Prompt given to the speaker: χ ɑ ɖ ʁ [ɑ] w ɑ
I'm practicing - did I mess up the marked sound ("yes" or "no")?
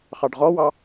yes